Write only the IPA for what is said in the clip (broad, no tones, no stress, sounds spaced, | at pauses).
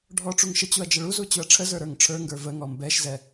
ɖʱ ɔ ʈ͡ʂ u ŋ ʃ ə t͡ɕ u ɐ̯ d͡ʒ ə ɭ u z u t͡ɕ u ɐ̯ ʈ͡ʂʰ ə z ə˞ ɾ ə˞ ŋ ʈ͡ʂʰ ə˞ ŋ ɡ ə˞ v ə ŋ ɔ m b ɛ ʃ z ɛ